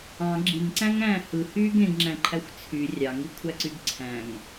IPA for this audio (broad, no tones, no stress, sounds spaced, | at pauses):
ɑ̃ ɡ͡ǁ i ŋ ǀ æ̃ ŋ æ̃ː h ɯ h yː ɡ ẽ ɡ ŋ͡ǁ æ̃ ǃʰ æ xʷ t͡sʰ y rʲ ɑ ŋ i kʷʰ æ ǀ y ɡ ǀʰ æ̃ ŋ